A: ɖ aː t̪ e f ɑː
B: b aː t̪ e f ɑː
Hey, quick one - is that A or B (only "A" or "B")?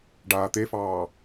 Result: A